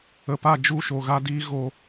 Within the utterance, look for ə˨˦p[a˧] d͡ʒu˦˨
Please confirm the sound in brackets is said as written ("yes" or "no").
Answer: no